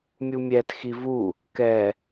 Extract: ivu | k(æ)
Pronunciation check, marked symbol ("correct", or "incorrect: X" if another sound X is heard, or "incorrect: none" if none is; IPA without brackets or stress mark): incorrect: ɛ